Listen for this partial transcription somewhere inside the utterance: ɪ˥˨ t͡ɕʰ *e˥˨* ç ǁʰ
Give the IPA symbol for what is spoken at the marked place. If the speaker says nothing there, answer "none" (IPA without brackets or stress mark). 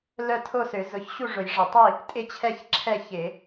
ɛ˥˨